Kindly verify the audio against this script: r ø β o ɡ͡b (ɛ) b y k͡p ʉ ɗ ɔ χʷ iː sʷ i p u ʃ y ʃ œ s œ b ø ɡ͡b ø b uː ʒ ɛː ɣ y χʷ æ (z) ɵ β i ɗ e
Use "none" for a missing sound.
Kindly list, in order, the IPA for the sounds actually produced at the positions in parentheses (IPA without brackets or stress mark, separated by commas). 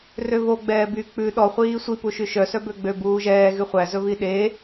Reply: ɛː, z